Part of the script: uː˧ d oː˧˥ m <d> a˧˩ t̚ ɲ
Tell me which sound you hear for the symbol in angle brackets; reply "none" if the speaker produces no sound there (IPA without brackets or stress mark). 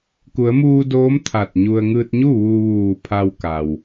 t̪ʰ